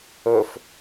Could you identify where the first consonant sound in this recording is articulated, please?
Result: labial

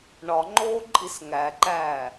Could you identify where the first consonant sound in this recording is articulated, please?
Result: retroflex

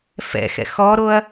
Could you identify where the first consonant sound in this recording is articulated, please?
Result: labial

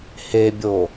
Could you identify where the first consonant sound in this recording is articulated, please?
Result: glottal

